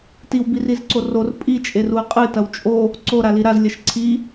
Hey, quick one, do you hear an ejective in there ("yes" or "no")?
yes